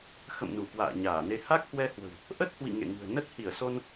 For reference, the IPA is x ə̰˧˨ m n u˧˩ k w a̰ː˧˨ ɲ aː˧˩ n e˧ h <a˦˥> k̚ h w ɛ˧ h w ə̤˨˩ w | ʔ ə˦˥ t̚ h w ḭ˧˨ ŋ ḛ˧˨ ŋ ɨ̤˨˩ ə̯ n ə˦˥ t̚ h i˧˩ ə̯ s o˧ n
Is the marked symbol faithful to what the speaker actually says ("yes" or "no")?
yes